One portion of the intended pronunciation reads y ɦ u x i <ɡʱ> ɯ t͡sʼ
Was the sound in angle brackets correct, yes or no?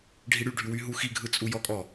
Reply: yes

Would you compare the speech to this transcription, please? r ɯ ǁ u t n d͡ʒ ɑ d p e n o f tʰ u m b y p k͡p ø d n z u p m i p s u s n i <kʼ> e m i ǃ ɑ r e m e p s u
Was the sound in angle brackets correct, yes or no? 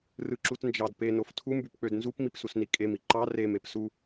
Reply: yes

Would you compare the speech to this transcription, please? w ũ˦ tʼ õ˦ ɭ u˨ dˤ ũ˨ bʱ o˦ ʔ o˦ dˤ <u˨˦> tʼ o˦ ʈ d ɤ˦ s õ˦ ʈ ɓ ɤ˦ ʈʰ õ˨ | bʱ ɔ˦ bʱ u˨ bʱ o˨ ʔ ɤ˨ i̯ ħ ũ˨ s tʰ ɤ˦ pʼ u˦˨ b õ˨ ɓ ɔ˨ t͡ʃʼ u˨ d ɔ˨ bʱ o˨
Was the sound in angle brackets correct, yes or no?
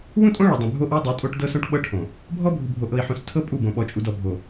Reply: yes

